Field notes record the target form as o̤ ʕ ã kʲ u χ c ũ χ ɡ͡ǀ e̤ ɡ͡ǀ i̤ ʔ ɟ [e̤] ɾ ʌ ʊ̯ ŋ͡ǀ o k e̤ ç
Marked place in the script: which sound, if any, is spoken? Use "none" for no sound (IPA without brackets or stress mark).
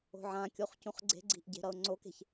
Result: e̤